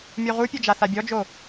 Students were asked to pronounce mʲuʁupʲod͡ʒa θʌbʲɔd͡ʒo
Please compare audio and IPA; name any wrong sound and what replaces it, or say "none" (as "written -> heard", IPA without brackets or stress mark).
ʌ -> a